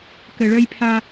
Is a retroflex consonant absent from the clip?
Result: no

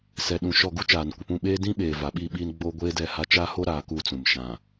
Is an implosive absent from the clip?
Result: no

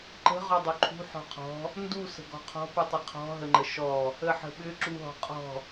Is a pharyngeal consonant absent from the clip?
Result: no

